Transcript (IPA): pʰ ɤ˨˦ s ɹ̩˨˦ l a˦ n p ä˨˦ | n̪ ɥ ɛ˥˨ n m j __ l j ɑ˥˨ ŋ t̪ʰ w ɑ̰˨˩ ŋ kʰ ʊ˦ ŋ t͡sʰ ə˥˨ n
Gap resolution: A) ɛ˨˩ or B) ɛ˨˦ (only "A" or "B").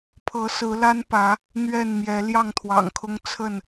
B